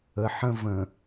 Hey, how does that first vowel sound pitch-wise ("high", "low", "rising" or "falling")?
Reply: low